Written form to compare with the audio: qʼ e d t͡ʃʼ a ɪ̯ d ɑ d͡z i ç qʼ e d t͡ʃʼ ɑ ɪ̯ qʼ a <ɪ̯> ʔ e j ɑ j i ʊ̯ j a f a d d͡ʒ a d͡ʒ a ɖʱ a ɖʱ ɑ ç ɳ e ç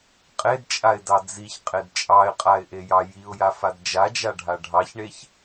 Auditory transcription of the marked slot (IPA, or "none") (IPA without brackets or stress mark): ɪ̯